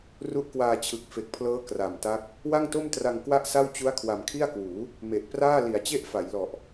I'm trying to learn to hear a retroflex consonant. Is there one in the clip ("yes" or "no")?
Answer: no